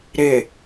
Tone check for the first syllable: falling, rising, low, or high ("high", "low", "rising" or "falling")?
low